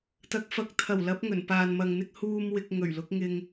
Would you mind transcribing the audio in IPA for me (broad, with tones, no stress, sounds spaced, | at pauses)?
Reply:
t̪ ɐ˨˥ k̚ f ɐ˨˥ k̚ t̪ʰ ɐ˨˩ w l ɐ˨˥ p̚ ŋ ɵ˨˩ n p aː˨ n m ɐ˨ ŋ n̪ ɪ˧ k̚ h uː˧ m w ɪ˧ k̚ ŋ ɵ˨˩ ɥ l ʊ˨˥ k̚ ŋ ɪ˧ ŋ